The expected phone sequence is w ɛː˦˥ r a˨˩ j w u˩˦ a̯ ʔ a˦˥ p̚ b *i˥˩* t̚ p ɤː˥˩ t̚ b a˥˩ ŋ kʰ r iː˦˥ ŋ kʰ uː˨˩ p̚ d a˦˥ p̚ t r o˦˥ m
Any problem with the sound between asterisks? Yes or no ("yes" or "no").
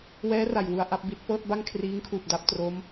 no